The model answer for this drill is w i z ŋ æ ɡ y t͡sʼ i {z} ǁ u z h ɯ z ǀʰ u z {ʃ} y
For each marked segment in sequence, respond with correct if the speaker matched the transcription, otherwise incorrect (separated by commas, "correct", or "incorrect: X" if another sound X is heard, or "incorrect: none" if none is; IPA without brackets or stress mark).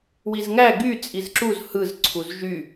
correct, incorrect: ʒ